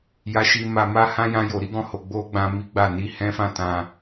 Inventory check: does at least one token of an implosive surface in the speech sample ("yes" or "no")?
no